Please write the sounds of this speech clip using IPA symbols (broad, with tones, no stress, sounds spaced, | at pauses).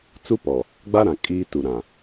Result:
t͡s u˦ p ɔ˨ | ɡ͡b a˦ ɾ ã˨ kʼ iː˦ t u˨ ɾ ã˨